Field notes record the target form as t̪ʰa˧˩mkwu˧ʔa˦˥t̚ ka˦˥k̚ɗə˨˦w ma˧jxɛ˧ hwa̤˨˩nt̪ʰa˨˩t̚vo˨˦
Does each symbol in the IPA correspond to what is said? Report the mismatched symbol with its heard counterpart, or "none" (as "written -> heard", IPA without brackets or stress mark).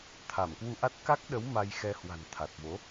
none